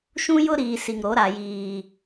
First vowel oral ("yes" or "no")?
no